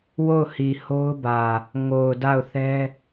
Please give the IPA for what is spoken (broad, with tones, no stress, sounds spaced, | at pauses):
w o˦˨ ʊ̯ h i˨ h o˦ ʊ̯ b ä˨ | ŋ o˨ ʊ̯ d a˦˨ ʊ̯ θ ɛ˦